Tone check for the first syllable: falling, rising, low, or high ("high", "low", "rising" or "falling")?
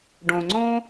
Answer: low